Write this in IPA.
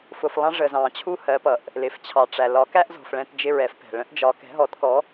f ʊ˨ f lˠ ɑ̃˦ ʐ ə˨ z ɑ̃˨ t͡ɕʰ u˦ h ɜ˨˦ p ʌ˨ ʔ | l ɪ˨ f t͡ɕʰ ɑ˨ ʈ͡ʂ æ˨ l ɒ˨˦ k æ˦ ʔ z ɔ̤˨ f ɭ ɛ̃˦ t d͡ʒ ɪ˦ ɹ ɛ˨˦ f p ɛ̤˨ ɭ ə̃˦ ʔ d͡ʒ ɒ˨˦ k ɛ̤˨˦ ɦ ɔ˨˦ t k ɔ˨˦

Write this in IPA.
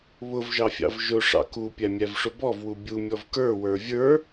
β ʊ v ʒ ɑ fʲ ɑ̰ v ʒ ʊ ʂ ɑ̰ k u pʲ æ mʲ æ v ʂ ʊ b ɔ v w u bʲ u mʲ ɔ v k ə˞ w ə˞ vʲ ə˞

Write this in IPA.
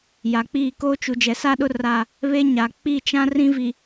j a˨ k͡p iː˦˨ k oː˦ t͡ʃ u˨ d͡ʒ ɛ˨ s a˦ ɗ ʊ˦ r a˦˨ | β e˦ ɲ aː˨ k͡p i˦˨ t͡ʃ ã˦ r ĩ˦ v i˨

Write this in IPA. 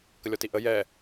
k ə lʲ ɔ t i ʔ ə j ɛ

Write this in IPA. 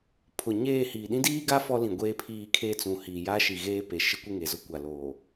pʰ ʊ˨ ɲ eː˦˨ h iː˨ ɗ ĩ˦ d iː˦ ɡ a˦ f ɔ˦ l ĩ˨ ɡʷ eː˦ pʰ iː˦˨ kʰ eː˦ t͡s ũ˨ h iː˨ j a˦ ʃ i˨ ɣ eː˦ p e˨ ʃ ɪ˦ kʷ e˦ ŋ e˨ z ʊ˦ kʷ a˨ l oː˨

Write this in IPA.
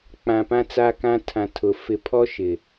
k͡p ã˨ p ã˦ t͡s a˦ k ã˦ tʰ ã˨ tʰ ʊ˨ f ɪ˨ pʰ ɔ˦ ʃ ɪ˨

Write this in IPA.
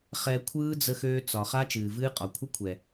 χ ɛ˧ kʷʰ ɯː˦ d͡z ə˧ x øː˧ t͡s ɒ˨ χ a˦ t͡ʃ ɨː˨ v ɨː˦ qʼ ɒ˨ kʷʰ ə˦ kʷʰ ɛ˨

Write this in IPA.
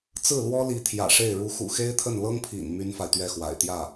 t͡s ɹ̩˥˩ l w ɔ˥ l i˧˥ t̪ʰ j ä̰˨˩ ʂ e˥˩ ɪ̯ ɻ u˧˥ x ṵ˨˩ x e˥ ɪ̯ t̪ʰ ə˥˩ n l ɤ˥ ŋ pʰ ḭ˨˩ n m y˥ n f a˨ ɪ̯ t̪ ɥ ɛ˥˩ x w a̰˨˩ ɪ̯ t̪ j ä˥˩

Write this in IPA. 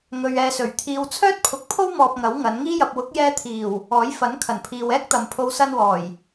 ŋ ɵ˨ ɥ ɛː˧ s ɵ˨˩ ɥ t̪ʰ iː˨ w t͡sʰ œː˥ t̚ pʰ ʊ˨˥ k̚ pʰ o˥ w m ɔː˧ p̚ ŋ ɐ˨˥ w ŋ ɐ˨˧ n ŋ iː˥ j ɐ˧ p̚ w ʊ˨˥ k̚ j ɛː˧ t̪ʰ iː˨˩ w | ɔː˨˥ j f ɐ˨˥ n kʰ ɐ˨˩ n pʰ iː˨ w ɛː˥ k̚ t̪ ɐ˨ m pʰ o˧ w s ɐ˧ n w ɔː˨˩ j

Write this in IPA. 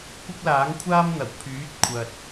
kʷ ɪ˥ k̚ l aː˨˥ ŋ kʷʰ aː˥ m n̪ ɐ˨˩ w pʰ yː˨˥ t̚ kʷʰ ɐ˨ t̚

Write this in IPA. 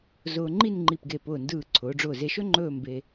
z ʊː˧ ŋ͡ǃ i˥˧ n ŋ͡ǃ i˧˩ p ɡ e˧˩ p ʊː˧˩ n d ɯː˧˩ ǀʰ ʊː˩˧ ɖ͡ʐ ʊː˧˩ z e˧ ʃ ɵ˥ ŋ͡ǃ ɵː˥˧ m b e˧

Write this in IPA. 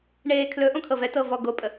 ɳ eː kʰ l ɵ ʔ õ kʰ ɤ v ɛ t ɤ v ɔ ɡ o pʼ ə

